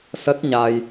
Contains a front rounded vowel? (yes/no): no